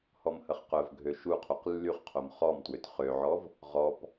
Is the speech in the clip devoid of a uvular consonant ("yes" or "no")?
no